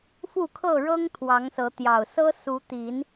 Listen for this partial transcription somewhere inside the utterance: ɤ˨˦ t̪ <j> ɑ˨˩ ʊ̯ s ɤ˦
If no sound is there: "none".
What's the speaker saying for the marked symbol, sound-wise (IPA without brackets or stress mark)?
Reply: j